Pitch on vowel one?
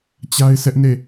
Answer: high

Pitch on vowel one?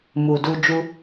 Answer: low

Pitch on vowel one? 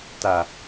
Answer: low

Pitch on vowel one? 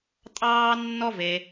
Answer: high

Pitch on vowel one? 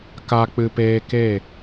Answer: low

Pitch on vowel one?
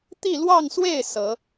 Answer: falling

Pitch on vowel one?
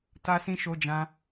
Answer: high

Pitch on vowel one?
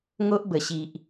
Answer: high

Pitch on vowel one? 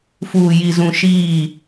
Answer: low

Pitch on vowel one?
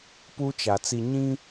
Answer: high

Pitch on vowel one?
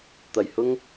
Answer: low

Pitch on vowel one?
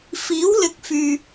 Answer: rising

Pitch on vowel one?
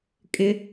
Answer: high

